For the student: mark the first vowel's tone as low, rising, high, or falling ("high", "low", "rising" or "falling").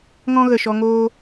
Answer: high